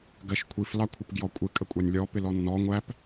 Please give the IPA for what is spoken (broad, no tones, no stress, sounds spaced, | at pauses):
ɡ ɜ ʃ kʷʰ i f l ɑ kʷʰ ɪ p ɡ j ɔ kʷʼ ɪ kʼ ə kʷʼ ɑ nʲ lʲ ɔ p ɪ l ɔ nː ɔ ŋʷ æ p